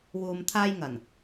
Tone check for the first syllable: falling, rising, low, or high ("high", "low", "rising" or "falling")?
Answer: low